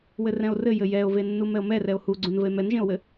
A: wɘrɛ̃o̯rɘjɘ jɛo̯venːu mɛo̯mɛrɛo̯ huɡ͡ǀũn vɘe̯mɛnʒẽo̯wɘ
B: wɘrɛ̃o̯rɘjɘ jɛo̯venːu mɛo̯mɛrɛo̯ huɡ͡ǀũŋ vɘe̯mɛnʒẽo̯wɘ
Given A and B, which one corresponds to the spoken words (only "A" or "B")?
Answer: A